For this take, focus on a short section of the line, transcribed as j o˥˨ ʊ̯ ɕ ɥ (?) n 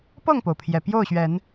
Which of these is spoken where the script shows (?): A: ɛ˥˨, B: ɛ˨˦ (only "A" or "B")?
B